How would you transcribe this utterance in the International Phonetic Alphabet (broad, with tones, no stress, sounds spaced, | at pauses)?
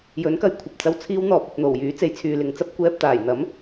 j ɵ˨˥ n k ɐ˧ j kʷʰ ɐ˨ p̚ t͡s ɐ˧ w t͡sʰ iː˧ w n̪ ɔː˨ p̚ ɐ˨ t̚ n̪ o˨˩ w j yː˨˥ t͡s e˧ j t͡sʰ yː˨ l ɪ˨ ŋ t͡s ɐ˥ p̚ kʷ ɛː˧ p̚ t̪ aː˨˩ j n̪ ɐ˨˥ m